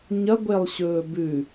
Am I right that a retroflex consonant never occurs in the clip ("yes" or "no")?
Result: yes